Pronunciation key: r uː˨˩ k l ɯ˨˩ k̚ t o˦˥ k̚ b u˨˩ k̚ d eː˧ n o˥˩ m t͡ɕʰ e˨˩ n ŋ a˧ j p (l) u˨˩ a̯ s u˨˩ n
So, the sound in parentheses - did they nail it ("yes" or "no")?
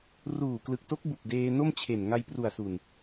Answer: no